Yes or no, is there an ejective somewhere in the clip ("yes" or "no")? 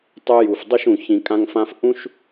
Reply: yes